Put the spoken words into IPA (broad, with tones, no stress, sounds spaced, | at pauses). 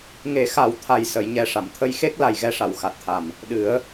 ŋ e˨˩˦ x a˨˩˦ w t̪ʰ a˨˩ j s ə˨˩˨ j ɲ ɛ˨˩ ʂ a˨˩˨ m t̪ʰ ə˧ j x e˦˥ k̚ l a˨˩ j ɣ ɛ˧ ʂ a˨˩˨ w x a˨˩ t̚ t̪ʰ a˨˩ m | ɗ ɨ˨˩˦ ə̯